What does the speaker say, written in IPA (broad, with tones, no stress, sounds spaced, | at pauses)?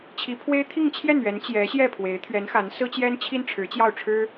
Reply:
t͡ɕʰ i˧˥ pʰ w e˥ ɪ̯ t̪ʰ i˥˧ ŋ t͡ɕʰ j ɛ˥˩ n ɥ ɛ˧˥ n t͡ɕ j ɛ˧˥ ɕ j ɛ˥˩ pʰ w e˧˥ ɪ̯ t̪ʰ ɥ ɛ˧˥ n x a˧˥ n s ɹ̩˥ t͡ɕ j ɛ˥ n t͡ɕʰ i˥ n ʈ͡ʂʰ ɻ̩˧˥ t͡ɕ j ɑ˥˩ ʊ̯ ʈ͡ʂʰ ɻ̩˥